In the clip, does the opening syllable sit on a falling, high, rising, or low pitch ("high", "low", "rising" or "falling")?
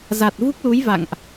low